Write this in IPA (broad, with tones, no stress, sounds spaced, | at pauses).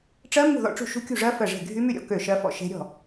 ʈ͡ʂ ɜ˦˥ m ṳ˥˩ ð ɔ̰˥˩ ʈ͡ʂ ṳ˥˩ ʃ ṳ˦˥ kʲ ṳ˥˩ ʐ ɜ˦˥ f ɜ˥˩ ʐ e̤˥˩ ɡʱ y˦˥ m y˥˩ ɾʲ ɔ̰˦˥ k ø˥˩ ʃ ɜ˦˥ f ɔ̰˥˩ ʃ e̤˦˥ ɾʲ ɔ̤˥˩